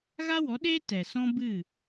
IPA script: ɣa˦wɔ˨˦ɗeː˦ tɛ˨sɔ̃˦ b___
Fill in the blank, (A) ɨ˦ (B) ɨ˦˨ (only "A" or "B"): B